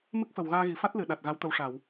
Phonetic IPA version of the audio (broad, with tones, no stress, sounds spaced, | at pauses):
m ɨ˦˥ k̚ f ə˨˩ w ɣ aː˧ ɣ i˨˩˨ f a˦˥ t̚ l ɨ˨˩˨ ɗ a˨˩ t̚ ɣ a˧˥ w t̪ ə˧ w ʂ a˨˩˨ w